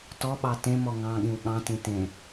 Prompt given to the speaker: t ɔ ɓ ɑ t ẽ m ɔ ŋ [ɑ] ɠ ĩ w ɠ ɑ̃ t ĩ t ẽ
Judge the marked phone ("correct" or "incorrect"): incorrect